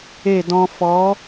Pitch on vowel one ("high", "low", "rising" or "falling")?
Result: falling